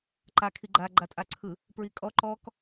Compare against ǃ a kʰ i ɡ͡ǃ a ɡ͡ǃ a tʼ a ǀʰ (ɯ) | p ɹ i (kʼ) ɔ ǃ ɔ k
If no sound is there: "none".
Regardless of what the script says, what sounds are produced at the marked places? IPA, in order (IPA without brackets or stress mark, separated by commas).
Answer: ɯ, kʼ